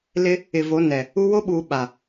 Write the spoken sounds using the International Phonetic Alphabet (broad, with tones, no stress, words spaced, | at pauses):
lɪ˦ | ɪ˨vo˨˦nɛ˨ | u˦ wo˦ɓuː˨ ɓa˨